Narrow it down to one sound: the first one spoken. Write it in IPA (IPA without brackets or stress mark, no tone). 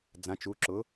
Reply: d͡z